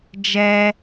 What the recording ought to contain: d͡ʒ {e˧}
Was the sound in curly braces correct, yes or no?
no